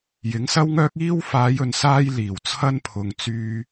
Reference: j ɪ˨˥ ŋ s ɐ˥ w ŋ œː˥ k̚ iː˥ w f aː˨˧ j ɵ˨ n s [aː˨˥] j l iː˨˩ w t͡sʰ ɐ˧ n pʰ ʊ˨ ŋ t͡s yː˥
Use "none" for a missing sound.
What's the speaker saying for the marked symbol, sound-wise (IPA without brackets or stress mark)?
aː˥